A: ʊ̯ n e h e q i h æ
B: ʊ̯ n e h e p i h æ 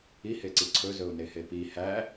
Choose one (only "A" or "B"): B